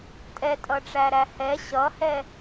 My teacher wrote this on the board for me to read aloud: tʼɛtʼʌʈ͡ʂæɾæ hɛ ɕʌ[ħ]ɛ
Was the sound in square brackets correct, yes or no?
no